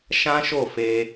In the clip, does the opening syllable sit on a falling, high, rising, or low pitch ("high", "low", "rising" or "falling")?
high